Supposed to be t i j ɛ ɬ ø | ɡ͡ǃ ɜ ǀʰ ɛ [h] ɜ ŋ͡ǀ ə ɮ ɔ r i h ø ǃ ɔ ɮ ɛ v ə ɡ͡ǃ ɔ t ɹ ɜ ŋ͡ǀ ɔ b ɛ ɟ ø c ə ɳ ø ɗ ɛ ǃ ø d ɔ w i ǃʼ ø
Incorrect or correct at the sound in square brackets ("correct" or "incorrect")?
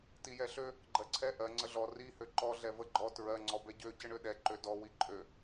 incorrect